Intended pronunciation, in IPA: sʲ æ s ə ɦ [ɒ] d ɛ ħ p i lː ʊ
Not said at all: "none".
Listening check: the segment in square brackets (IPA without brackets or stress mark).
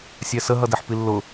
ʌ